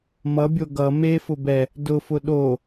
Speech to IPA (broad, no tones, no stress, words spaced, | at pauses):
mʌbʲo ɡʌ mefʊ bɛ | dʊfʊ ɗo